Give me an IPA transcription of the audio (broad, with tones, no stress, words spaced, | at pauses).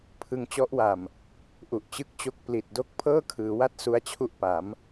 pʰɯ˧ŋt͡ɕɔ˦˥ʔwa˨˩m | ʔu˨˩ʔt͡ɕɯ˥˩k̚t͡ɕo˥˩k̚ pli˨˩t̚do˥˩k̚ pʰɤː˥˩kʰɯː˩˦wa˦˥t̚ su˦˥a̯t͡ɕʰu˥˩ʔ pa˩˦m